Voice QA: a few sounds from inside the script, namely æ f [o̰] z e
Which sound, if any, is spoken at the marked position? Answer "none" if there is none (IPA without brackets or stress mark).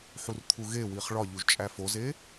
o